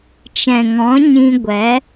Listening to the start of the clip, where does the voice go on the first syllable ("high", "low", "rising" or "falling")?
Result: low